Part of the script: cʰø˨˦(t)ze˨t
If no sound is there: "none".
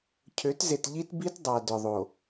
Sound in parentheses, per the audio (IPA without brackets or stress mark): t